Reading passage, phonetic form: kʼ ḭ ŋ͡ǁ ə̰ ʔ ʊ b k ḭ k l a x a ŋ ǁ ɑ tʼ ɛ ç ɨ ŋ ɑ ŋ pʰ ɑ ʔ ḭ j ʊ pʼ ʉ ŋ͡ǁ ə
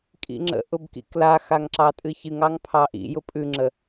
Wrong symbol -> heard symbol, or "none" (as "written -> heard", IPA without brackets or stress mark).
ɛ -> ɨ